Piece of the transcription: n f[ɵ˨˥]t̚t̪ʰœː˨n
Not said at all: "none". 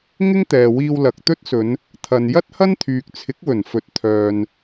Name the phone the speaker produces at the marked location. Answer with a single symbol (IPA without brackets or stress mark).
ɵ˨